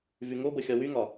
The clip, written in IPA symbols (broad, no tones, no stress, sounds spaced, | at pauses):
v y ŋ o b ə xʲ ɒ w y ŋ ɒ